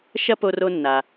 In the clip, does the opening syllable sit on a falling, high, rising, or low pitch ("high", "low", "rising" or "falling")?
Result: high